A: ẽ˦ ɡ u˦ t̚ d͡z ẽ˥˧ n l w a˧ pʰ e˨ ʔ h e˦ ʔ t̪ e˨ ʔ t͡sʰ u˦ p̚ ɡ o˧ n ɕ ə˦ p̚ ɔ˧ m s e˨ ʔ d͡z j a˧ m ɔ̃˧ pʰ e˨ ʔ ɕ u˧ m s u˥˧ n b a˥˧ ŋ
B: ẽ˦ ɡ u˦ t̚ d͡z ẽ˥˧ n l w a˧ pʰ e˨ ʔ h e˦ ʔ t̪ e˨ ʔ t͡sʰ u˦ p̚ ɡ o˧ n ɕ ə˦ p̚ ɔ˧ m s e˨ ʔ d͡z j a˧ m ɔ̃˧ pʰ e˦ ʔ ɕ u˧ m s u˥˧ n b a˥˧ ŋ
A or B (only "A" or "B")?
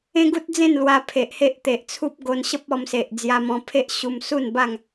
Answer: B